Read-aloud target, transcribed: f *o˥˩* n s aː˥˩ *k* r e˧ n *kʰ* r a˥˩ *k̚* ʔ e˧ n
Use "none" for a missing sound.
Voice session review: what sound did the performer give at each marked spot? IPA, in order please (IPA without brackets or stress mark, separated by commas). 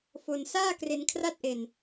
o˧, k, kʰ, t̚